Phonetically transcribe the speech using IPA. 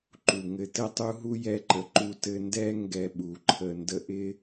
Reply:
ǃu˨ ŋɘ˧tɘ˦tˤu˦ɦu˦ jɛ˦ǃə˧ ǃu˧ tɘ˧ ndɛ˦ ŋɡɛ˧ ɓu˨ ǃʰə˧ ndə˦ ʔɪ˦

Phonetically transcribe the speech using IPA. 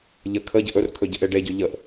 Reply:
ʎə kʰəɟəʔ ɵrkʰɵ ɟəʔeɖeɟɵ ʎəʔ

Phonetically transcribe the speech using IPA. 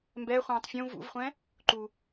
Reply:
mbɛχʷɛ̃ːtˤ fʲũ vṵvχʷɛ̃ | ǃu

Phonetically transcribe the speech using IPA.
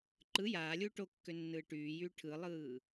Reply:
ǃɯ jaːlʲuː ʈokːø nːɯːʈyːjyː ʈʰɯlˠɯː

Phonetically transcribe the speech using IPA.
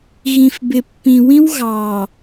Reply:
ɣĩ˨fbɪ˨pːĩ˨wĩ˦w ɣɑ˨

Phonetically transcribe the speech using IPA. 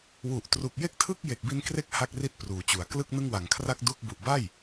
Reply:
wu˨˩ʔ tru˨˩k̚je˥˩k̚tʰɯ˥˩k̚ je˨˩k̚bi˧nkre˦˥k̚ ha˥˩k̚ri˥˩t̚pruː˩˦t͡ɕu˩˦a̯ klɯ˥˩k̚nɯ˥˩ŋwa˨˩ŋkʰra˥˩k̚ du˥˩k̚ bu˨˩ʔba˥˩j

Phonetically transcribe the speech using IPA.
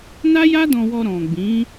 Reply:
na˦ja˦dɔ̃˧wɔ˧ ɾɔ̃˨ɡ͡bĩ˨˦

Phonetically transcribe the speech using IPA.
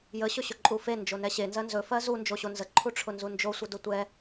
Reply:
jə ɕɵɕɵǃʼufe nd͡ʒonɛɕe nzɜnzɵ fɜzu nd͡ʒoɕonzə ǃʰuʈ͡ʂʰʊnzund͡ʒo sʷədʊtʷɛ

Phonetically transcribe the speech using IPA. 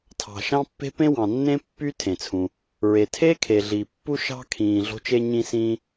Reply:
tʰɑ̤˩ ʃɑ̃˥pːe̤˥ pẽ˥wɑ̃˩nːẽ˥ pːy˥tʰẽ˩t͡sʰũ˩ | ɹe˩tʰe˥ kʰe˩ɮi˩ pːu˥ʃɑ̤˥kʰĩː˩ ɮo̤˥t͡ʃe˥ ɲĩ˥sĩː˥

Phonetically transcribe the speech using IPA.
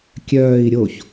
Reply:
kʲœːi̯ ɾʲoç

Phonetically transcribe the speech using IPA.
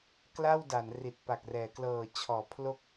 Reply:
kla˥˩wda˩˦n ri˨˩t̚pa˨˩k̚rɛː˩˦ klɤː˨˩t͡ɕʰɔː˩˦pʰlo˦˥k̚

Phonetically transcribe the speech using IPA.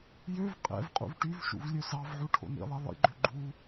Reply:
jøv qʼɛ̰vqʼṵv ʈyvʃṵv lʲøsɑvʕu ʈʰo̰nḭlˠɛ lˠḭɡ͡ǃø ɡ͡ǃu

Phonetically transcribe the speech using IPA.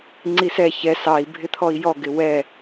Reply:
ŋ͡ǀisɛ çɛ sɑi̯ bʱɪt̪ʰɔi̯jɔ ɡɪwɛ

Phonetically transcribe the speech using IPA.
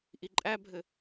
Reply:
ʔiǃʼæbʱɘ

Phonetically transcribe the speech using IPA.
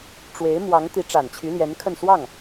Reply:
ʈ͡ʂwe˧˥ɪ̯ mwɑ˧˥ŋt̪i˧˥ ʈ͡ʂa˨˩nt͡ɕʰy˧˥ljɛ˧˥nkʰə˥˧n swɑ˥˩ŋ

